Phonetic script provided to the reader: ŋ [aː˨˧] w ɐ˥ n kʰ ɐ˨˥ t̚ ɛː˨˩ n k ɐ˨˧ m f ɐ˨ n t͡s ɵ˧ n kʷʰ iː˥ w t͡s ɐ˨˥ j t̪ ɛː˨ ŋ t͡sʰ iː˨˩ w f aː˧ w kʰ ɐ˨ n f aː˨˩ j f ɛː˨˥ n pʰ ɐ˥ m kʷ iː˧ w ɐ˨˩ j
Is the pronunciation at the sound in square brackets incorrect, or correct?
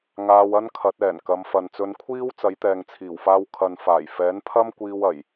incorrect